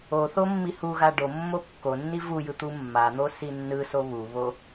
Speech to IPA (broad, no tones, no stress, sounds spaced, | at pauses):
o θ o mː i h u ɣ a ɖ o mː o kː o nː i v u j ɯ t̪ u mː a n̪ o s i nː ɯ s o β u β o